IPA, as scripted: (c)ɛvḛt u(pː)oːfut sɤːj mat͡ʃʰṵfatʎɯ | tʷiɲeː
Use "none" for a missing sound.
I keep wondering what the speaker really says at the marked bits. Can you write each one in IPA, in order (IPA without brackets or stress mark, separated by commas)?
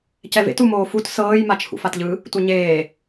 c, m